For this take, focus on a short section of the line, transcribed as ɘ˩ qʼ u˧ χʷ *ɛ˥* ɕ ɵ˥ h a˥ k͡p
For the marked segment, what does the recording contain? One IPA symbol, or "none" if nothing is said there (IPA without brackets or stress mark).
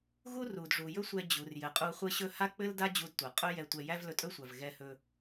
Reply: ɘ˥